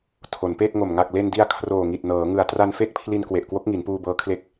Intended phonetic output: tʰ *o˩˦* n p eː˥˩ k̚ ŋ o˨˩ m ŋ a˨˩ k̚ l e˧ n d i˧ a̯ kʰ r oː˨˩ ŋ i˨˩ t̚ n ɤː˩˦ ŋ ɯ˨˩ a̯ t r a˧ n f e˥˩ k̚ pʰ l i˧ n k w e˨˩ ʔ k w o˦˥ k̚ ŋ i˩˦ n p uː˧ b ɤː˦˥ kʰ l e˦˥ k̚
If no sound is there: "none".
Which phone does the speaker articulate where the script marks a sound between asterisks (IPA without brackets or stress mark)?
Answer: o˩˦